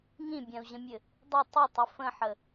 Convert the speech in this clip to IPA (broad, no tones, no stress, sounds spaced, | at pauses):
ŋ ĩ bʲ ã u̯ ʑ ə̃ mʲ ɘ | dˤ ə tˤ ə tˤ ə f ə̃ ħ ə